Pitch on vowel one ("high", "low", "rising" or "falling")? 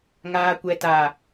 low